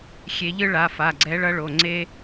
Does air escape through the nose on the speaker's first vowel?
no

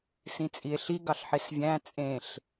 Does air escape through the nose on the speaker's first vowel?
yes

